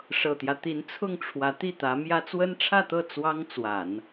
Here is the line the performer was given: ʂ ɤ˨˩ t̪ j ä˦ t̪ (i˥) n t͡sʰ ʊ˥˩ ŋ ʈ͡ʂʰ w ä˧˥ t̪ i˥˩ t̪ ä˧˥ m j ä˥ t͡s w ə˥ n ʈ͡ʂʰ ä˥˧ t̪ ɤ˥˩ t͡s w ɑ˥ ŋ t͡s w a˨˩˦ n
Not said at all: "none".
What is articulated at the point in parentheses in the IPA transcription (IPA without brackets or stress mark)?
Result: i˧˥